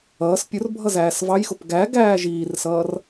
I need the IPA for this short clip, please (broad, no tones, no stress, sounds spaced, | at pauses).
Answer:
ʌː s pʲ ʊ r bʱ ʌ z æː s v ɑ j x ʊ p ɡ æ ɡ æː ʒ iː r s ʌː r